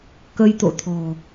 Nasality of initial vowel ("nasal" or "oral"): oral